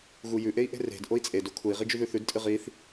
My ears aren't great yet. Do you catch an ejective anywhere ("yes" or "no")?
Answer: yes